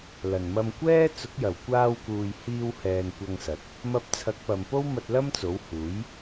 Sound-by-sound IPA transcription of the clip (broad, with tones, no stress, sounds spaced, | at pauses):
l ɐ˨˩ n m ɐ˧ m kʷ ɛː˥ t͡s ʊ˨˥ k̚ j ɐ˨˩ w kʷ aː˧ w k uː˨ j h iː˧ w h ɛː˨ n kʷ ɐ˧ ŋ s ɐ˨˥ t̚ | m ɐ˧ p̚ t͡sʰ ɐ˨˥ k̚ p ɐ˨ m p o˥ w m ɐ˧ t̚ l ɐ˥ m t͡s o˨˥ w h uː˨˥ j